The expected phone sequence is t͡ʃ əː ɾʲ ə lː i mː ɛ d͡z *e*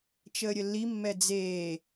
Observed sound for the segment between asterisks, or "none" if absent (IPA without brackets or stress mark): eː